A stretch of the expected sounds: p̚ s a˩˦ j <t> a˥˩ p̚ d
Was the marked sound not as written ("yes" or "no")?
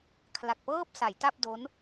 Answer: no